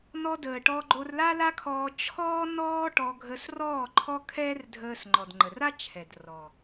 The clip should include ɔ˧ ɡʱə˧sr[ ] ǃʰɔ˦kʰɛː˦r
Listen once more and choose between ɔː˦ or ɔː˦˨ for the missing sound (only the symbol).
ɔː˦˨